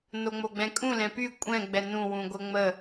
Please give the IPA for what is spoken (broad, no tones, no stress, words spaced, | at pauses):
noŋ͡moɡ͡bɛ̃kʼũ lɛ̃py kʷʼɛ̃ ɡ͡bɛnũ wũɡʷəŋ͡mə